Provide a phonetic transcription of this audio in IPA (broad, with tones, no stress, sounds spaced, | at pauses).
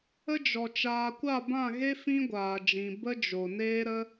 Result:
ə˦ d͡ʒ ɔ˨ t͡ʃ aː˨ kʷ a˦˨ b ã˦˨ ɣ e˦ f ĩ˦ ɡʷ aː˨ d͡ʒ ĩ˨ b ə˦ d͡ʒ o˨ n eː˦ ɾ ə˦